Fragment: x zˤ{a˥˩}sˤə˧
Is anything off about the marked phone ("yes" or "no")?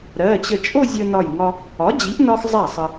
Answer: no